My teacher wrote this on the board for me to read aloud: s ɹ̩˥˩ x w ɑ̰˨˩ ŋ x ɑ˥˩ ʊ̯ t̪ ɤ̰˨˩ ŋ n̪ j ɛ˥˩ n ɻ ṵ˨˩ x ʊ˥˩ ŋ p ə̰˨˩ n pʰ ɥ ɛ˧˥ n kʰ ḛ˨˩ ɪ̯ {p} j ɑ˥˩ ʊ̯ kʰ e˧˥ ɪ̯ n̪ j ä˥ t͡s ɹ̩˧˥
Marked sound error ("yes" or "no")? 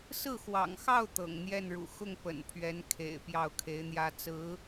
no